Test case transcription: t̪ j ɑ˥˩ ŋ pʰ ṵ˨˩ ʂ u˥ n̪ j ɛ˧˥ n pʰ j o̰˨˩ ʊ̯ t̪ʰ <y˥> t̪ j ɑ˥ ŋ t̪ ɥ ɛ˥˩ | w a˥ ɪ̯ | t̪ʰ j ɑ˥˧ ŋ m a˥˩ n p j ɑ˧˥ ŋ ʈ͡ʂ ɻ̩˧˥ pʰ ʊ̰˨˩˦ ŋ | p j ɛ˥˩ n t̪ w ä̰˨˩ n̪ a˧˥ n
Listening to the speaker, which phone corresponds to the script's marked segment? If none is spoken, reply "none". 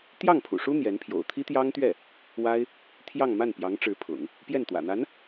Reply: i˥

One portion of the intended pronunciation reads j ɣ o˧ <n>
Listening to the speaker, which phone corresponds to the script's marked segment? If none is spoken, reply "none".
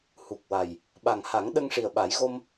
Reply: m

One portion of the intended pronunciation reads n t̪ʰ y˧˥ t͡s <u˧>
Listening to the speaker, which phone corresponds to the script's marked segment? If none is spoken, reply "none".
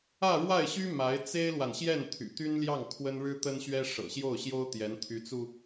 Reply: u˧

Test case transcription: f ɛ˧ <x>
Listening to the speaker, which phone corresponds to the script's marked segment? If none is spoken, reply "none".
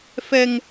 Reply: ŋ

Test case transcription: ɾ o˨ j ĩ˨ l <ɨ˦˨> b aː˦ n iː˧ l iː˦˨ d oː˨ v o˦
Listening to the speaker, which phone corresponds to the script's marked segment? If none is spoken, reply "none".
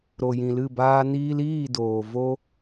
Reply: ɨ˦˨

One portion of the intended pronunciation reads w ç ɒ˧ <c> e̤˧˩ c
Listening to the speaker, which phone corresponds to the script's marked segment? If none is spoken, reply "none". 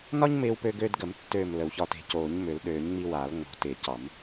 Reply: t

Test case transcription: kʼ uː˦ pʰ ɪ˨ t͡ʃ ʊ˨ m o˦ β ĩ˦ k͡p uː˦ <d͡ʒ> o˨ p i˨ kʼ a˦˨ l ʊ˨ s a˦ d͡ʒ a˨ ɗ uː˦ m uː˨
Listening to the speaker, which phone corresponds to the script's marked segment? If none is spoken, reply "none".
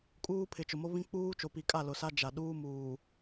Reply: t͡ʃ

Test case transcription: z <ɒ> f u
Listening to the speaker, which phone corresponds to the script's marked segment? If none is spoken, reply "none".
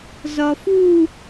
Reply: ɒ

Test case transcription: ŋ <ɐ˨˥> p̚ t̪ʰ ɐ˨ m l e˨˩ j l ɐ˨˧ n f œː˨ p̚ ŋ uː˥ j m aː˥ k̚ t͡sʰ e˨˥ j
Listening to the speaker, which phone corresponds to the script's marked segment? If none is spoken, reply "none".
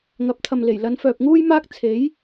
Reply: ɐ˨˥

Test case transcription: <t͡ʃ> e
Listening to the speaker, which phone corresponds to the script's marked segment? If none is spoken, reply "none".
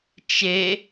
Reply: t͡ʃ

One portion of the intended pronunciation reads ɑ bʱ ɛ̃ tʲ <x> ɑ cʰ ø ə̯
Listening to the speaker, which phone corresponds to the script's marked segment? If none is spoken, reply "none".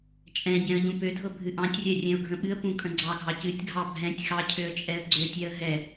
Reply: x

